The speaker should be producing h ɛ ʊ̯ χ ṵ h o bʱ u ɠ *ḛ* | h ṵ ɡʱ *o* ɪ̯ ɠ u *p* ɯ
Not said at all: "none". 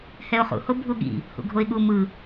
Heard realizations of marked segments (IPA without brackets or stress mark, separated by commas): ḭ, o, m